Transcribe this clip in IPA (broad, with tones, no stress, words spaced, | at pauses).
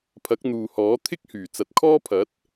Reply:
pʰɐ˨˥k̚n̪uː˨hɔː˨˥ t̪ʰɪ˥k̚ hyː˨˩t͡sɐ˨˥t̚kʰɔː˥pʰɐ˨˥t̚